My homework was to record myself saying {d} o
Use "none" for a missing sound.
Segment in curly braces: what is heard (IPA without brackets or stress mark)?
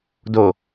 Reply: d